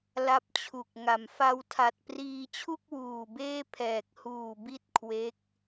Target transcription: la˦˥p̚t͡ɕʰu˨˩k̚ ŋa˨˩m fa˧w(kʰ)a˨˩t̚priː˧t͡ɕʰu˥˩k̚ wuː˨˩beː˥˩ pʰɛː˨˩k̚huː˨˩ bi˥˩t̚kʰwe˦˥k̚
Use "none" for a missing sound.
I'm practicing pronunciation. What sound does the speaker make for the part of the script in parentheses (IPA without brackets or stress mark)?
tʰ